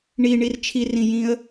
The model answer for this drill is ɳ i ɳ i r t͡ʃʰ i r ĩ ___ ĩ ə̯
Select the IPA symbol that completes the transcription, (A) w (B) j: B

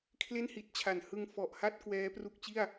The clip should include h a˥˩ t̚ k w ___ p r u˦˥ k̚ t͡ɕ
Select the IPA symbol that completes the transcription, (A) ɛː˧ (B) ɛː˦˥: B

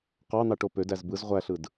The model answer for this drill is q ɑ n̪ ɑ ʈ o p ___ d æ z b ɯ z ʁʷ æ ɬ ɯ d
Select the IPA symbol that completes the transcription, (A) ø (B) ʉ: A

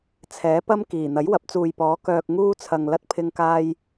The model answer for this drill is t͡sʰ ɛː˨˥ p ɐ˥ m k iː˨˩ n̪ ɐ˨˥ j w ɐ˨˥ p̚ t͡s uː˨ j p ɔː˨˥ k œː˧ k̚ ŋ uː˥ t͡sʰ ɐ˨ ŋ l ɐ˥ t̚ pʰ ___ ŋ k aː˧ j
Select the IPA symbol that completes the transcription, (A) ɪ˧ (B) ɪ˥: A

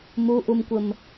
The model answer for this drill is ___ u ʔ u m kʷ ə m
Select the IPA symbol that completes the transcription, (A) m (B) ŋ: A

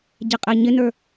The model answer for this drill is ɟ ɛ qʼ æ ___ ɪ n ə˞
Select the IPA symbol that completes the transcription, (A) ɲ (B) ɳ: A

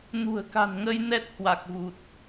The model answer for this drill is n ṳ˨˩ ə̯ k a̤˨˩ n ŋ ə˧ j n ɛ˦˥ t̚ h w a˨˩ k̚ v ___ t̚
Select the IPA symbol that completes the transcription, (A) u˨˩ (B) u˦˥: A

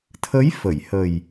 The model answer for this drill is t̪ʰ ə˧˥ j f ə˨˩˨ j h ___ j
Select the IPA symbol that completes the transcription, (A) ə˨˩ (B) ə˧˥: A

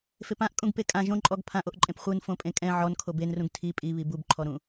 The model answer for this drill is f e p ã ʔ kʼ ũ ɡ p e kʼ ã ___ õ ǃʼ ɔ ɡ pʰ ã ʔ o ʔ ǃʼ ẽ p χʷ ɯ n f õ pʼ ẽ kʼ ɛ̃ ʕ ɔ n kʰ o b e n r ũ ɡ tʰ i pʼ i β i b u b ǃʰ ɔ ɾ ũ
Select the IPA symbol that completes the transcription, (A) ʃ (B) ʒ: B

